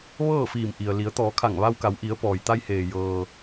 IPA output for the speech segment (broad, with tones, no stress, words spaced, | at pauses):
ʋɤː˥˨fiː˧˩mʔi˩ə̯ li˩˧ə̯t̪ɔː˩˧kʰa˧˩ŋ ʋa˧wka˩˧wʔi˩˧ə̯ pɔː˩jt̪a˧j heː˩jɤː˩